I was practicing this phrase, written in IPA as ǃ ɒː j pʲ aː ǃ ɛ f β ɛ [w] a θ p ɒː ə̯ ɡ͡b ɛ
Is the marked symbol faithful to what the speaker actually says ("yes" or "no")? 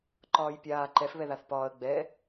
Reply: no